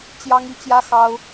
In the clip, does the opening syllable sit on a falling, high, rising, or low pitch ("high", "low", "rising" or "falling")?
high